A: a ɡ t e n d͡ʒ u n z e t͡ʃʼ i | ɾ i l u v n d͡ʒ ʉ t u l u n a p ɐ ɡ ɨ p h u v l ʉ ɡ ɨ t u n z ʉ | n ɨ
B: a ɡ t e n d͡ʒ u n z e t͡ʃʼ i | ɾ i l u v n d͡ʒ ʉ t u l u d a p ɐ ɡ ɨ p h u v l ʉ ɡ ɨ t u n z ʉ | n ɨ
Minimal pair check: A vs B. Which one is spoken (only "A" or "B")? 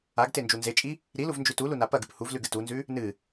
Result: A